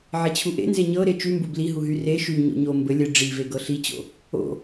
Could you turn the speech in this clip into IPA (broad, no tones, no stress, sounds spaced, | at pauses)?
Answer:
ʕ e t͡ɕʰ u ʔ ḛ n z e ɲ ɤ ɾ e t͡ʃ y m b u b l i ɦ u ɦ y r e ʃ y ɲ o̰ ɲ o m b ɘ lʲ ɘ ɖ͡ʐ i v e ɡ ɤ ɬ i t͡ɕ o̰ | o̰